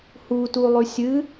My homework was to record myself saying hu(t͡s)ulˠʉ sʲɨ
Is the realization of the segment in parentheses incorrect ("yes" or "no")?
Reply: yes